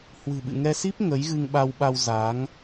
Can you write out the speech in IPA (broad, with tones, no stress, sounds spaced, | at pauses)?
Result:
h w ɨ̤˨˩ ɓ ɨ̰˧˨ ŋ ɛ˧ s i˦˥ p̚ ŋ ə˨˦ j ɣ ɨ˧ ŋ ɓ a˧ w ɓ a˧ w z a˨˦ ŋ